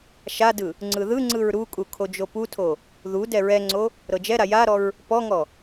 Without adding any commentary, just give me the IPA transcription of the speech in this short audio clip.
ʃadɯ | ŋ͡ǀɯðɯŋ͡ǀɯɹ ɾukʼu kʰod͡ʒoputʰo | ðu dɛɹɛŋ͡ǀo | ɾɤd͡ʒɛɾa jaɾɔɹ | pɔŋɔ

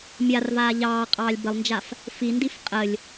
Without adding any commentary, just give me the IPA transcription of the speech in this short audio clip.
mʲarvaː ʎɑːqʼɑːlʲ bəlˠnd͡ʒaf | findif qʼəlʲ

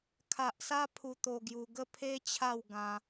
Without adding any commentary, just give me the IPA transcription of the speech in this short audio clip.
kʰa˨ʔsa˧ pʰu˧t̪o˧ɡju˧ɡə˥˧ pʰe˦t͡ɕʰa˥˧w ɡã˦

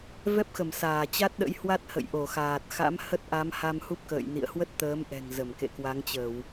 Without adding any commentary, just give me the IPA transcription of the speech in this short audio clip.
vɛ˦˥p̚xə˧˩m saː˧˩t͡ɕa˦˥t̚ɗə̰˧˥jhwa˦˥t̚ hə̰˧˨jʔo˧˩xaː˨˩t̚xa̰˧˥m hə˦˥t̚ʔa˨˦m ha˧mhu˦˥p̚kə̰ː˧˨j nḭ˧˨ə̯hwə˦˥t̚t̪əː˨˦mʔɛ̤˨˩ŋ zə˧˩mkḛ˧˨kwa˨˦ŋt͡ɕə˧˩˨w

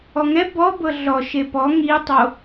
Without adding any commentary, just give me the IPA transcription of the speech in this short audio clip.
ɔŋɛ bɔbɤ ɮɔ ʃepɔ ŋitˤo

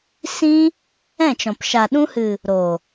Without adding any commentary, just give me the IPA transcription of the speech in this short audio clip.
sĩ˧ | ɛ̃˦˨t͡ʃɔ̃˨p ʃa˨ɗũ˧hɨ˨ | ɾo˨

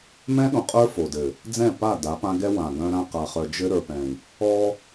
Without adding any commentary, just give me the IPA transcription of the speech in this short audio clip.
mɛ̃˦ɗõ˨qʼə˞˦ fo˨dɘ˨ | d͡zɛ̃˦˨pa˦˨ da˨˦pã˦ɡɛ˦ wã˨ɡœ̃˦ɾã˦ qa˨χœ˨ d͡ʒɘ˦ ɾə˞˨pɛ̃˨i̯ | ɔ˦

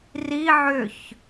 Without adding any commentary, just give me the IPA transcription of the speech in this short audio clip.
ri ʕʏç

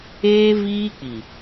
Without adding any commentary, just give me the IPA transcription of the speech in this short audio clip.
eː˦viː˦k͡pi˨

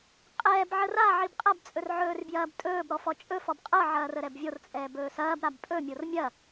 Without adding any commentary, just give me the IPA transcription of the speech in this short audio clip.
qʼɛːbʕə ra ʕibqʼɐbt͡sʼɵr ʕɵːrbjɐːbtʼɵːbɾɔ fɔt͡ʃʼɵfɔb qʼɤʕɐː rəɾɛbvʲort͡sʼɛː bɵːsɐːbɾab pʼɵmʲor mʲɐ

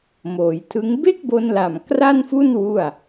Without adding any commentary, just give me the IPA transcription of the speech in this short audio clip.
moː˩˦jtʰɯ˦˥ŋ be˥˩k̚bo˧nla˨˩m kra˥˩nfu˥˩n wu˥˩a̯

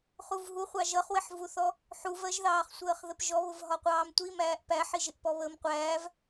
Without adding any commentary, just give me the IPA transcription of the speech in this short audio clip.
χuvɦuχʷɑ ʒʌχwɪħvuθɔ | ħuvɜʒðɑːχsʷəːχ ðəpʒɔβʊv ɦɒqʷɑːmtʷimæːʔ pæħiʒɪʔpɔ βəːmqʷæːv

